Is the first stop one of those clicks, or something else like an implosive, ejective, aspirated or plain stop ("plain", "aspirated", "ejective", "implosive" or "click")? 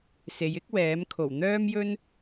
plain